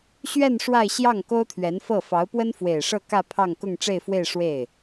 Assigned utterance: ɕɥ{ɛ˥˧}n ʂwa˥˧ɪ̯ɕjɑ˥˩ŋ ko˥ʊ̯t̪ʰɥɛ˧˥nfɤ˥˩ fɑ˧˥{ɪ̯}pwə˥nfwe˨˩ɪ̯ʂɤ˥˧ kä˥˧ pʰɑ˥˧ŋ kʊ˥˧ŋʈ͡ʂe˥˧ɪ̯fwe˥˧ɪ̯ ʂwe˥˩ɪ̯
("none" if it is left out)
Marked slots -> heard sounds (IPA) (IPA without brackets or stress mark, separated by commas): ɛ˥˧, ʊ̯